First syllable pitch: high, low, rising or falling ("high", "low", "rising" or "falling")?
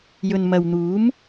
low